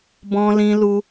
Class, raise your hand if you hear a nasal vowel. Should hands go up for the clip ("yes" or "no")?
yes